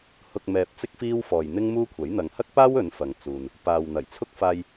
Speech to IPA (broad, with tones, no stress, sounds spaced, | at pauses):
h ʊ˨ k̚ m ɛː˧ p̚ t͡s ɪ˥ k̚ f iː˥ w f ɔː˨ j n̪ ɪ˥ ŋ m uː˥ kʷʰ ɐ˨˥ j n̪ ɐ˨ ŋ h ɐ˥ k̚ p aː˥ w ɵ˨˧ n f ɐ˨ ŋ t͡s uː˨ n | p aː˨ w n̪ ɐ˨˩ j t͡sʰ ʊ˥ k̚ f aː˧ j